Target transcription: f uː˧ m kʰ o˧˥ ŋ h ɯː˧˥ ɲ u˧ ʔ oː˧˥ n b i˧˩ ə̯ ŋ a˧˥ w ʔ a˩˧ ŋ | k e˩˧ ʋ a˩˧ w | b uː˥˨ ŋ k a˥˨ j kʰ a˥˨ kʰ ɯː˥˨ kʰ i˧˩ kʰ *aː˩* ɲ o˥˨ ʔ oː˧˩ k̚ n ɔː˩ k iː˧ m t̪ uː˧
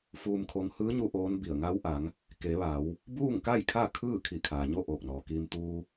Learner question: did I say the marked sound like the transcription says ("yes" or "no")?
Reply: yes